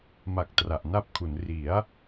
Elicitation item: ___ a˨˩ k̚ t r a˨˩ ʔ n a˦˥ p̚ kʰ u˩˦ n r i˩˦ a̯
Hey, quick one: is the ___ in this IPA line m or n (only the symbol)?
m